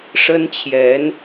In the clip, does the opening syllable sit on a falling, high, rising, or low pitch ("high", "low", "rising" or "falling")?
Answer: high